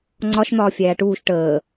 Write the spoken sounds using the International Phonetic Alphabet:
ŋ͡ǀ ɒ ʃ n̪ ɒː fʲ æː ʈ uː ʃ ʈ əː

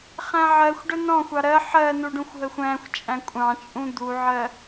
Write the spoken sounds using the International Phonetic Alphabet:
χ æ̃ ʕ ɜ xʷ ɖ ə n ɔ̃ xʷ ɑ ɾ ɜ ħ ɜ n u ɖ ũ xʷ ɦ ə xʷ æ̃ xʷ t͡ʃʼ æ̃ kʷʼ ɑ̃ t͡ʃʼ ũ d̪ u ʕ ɜ

